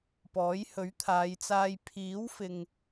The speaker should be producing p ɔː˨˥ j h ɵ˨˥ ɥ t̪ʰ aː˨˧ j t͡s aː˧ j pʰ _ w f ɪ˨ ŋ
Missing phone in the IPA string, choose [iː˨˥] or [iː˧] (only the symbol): iː˨˥